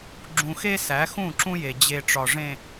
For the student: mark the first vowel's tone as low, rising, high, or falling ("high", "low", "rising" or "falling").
low